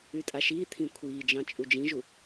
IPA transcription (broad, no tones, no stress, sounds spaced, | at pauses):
y tʼ a ʃ iː t̪ʰ ĩ kʷʰ iː d͡ʒ ɑ̃ t͡ʃʼ u d͡ʒ ĩ ʒ u